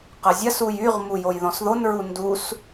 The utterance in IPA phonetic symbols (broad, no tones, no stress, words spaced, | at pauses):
qəzʲɐsuj yʁmu jojðɔ̃sðonɹu ndus